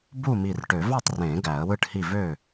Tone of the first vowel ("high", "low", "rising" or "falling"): falling